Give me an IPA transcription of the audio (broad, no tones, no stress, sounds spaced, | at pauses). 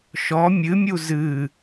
ʃ ɔ mʲ ɨ mʲ u z ɨ